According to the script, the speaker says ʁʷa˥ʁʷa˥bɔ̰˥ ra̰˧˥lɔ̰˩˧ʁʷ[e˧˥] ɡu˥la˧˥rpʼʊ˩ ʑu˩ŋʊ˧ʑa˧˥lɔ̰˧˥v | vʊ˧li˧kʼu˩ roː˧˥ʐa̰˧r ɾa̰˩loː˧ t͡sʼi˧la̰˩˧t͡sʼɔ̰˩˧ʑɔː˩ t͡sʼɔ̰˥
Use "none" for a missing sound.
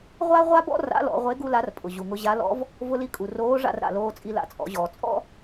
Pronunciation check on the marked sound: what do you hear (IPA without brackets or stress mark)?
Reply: e˧˥